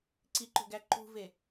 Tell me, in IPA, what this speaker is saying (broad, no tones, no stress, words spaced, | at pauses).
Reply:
ǀiǃo̤ɡæ ǃṳve